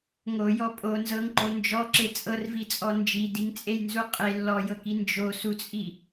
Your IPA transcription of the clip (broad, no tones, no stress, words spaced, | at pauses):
ŋojɔ pʼo nzɤŋǃo nd͡ʒɔǁe t͡sʼɤrvit͡sʼɔ nd͡ʒidiŋt͡sʼejnzu qʼe lːɔjɤki nd͡ʒosut͡sʼi